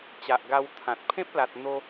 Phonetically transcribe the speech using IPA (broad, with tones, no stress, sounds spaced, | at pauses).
t͡ɕ a˨ ʔ ɡ a˧ w t̪ʰ ã˨ t̚ pʰ ẽ˦ p̚ l a˨ t̚ n̪ o˧